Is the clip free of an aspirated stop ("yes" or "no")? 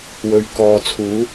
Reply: no